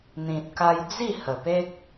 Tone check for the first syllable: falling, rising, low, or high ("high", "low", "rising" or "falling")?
low